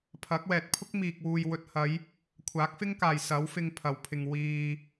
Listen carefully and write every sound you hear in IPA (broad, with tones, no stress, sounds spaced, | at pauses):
pʰ ɐ˨˥ k̚ w ɛː˨ t̚ pʰ ʊ˥ k̚ m iː˨ k̚ w uː˨ j w ɵ˨ t̚ h ɐ˨˧ j | kʷʰ aː˨˥ k̚ f ɪ˥ ŋ k aː˨ j s ɐ˨˥ w f ɪ˧ ŋ pʰ ɐ˨˩ w pʰ ɪ˨ ŋ w iː˨